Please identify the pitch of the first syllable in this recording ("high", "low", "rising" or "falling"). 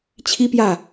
high